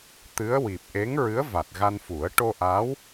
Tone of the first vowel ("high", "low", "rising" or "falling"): rising